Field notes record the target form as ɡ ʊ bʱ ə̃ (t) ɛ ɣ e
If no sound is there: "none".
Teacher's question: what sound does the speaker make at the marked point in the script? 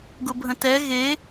t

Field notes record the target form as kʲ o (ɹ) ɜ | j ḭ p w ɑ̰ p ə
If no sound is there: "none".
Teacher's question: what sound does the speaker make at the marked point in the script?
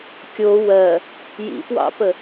w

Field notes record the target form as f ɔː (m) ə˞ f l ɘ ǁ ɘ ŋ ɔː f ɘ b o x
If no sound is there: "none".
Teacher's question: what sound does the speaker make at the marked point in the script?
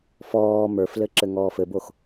m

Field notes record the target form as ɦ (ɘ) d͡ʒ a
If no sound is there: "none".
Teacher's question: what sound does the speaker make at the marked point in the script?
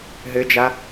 ɘ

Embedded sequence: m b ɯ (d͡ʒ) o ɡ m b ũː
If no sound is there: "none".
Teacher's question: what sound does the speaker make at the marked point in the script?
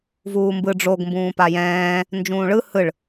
ɖ͡ʐ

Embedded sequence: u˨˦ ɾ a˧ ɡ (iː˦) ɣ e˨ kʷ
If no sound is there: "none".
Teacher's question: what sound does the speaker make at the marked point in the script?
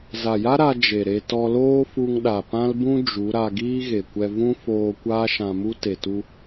iː˦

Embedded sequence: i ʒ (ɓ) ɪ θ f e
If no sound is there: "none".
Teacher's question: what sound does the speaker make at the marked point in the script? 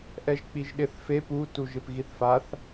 ɗ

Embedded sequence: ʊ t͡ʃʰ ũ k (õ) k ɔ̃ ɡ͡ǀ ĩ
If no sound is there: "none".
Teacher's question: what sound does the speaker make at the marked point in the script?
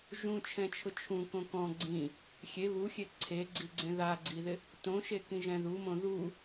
õ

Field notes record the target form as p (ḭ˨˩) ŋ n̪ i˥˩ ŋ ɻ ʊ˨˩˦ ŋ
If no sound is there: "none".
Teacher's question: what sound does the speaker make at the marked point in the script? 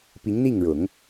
i˧˥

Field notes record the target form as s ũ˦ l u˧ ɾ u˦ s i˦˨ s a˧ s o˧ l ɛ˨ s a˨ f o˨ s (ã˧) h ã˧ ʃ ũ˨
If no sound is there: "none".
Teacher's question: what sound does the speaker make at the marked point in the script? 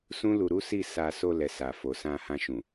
ã˧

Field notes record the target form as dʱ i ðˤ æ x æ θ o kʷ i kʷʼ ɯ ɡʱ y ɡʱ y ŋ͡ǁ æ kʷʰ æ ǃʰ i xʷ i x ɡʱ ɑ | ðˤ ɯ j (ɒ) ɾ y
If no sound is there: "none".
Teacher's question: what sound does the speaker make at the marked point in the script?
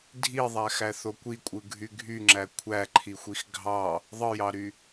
ɑ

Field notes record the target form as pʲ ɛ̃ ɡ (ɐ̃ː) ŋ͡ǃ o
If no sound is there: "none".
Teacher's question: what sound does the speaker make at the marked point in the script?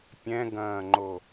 ɐ̃ː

